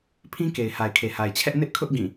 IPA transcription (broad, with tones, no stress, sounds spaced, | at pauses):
pʰ ĩ˦ k e˨ ɪ̯ h a˨ ɪ̯ kʰ e˨ h a˨ ɪ̯ t͡ɕʰ ɛ˦ ʔ n ɪ˦ ʔ kʰ ʊ˦ ʔ ɡ ĩ˦˨